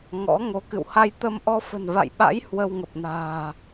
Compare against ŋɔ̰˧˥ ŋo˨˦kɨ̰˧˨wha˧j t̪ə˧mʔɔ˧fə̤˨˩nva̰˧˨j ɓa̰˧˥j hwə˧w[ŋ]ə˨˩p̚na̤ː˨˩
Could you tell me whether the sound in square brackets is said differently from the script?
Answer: no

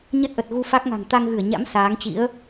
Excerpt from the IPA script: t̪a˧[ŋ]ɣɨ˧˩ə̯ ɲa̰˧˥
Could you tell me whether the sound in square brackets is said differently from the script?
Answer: no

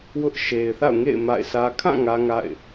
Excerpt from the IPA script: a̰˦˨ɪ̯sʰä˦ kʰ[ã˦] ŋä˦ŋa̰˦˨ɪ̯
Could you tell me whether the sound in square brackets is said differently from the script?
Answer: yes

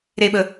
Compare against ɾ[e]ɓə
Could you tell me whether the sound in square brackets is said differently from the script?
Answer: no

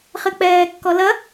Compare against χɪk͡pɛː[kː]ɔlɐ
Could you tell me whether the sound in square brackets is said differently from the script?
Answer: no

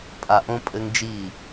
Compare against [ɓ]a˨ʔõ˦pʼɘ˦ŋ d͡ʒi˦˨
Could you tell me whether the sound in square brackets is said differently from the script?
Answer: yes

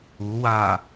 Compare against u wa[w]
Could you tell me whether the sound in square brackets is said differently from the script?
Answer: yes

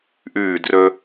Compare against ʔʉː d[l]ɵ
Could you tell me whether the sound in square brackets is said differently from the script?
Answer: yes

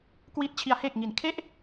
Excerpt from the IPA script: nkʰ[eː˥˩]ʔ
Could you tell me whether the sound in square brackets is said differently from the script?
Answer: yes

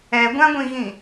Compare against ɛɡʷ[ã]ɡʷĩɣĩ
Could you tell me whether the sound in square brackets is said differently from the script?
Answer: no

